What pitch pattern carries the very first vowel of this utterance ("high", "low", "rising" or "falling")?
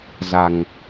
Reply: low